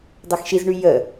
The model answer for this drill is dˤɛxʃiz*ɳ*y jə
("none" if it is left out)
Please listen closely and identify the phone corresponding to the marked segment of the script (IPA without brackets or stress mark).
ɳ